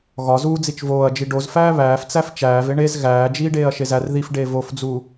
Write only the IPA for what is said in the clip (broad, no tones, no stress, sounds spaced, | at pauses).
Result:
ɣ ɒ z uː d͡z i t͡ʃ v oː ɐ̯ d͡ʒ i ɖ o z f æː β æː f t͡s æ f t͡ʃ æː v e ɳ e z ɣ æː d͡ʒ iː ɖ eː ɐ̯ ʃ e z æ r ð i f ɖ eː v o f d͡z uː